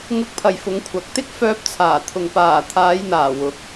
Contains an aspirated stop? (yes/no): yes